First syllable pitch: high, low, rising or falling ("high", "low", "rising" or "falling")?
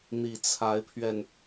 low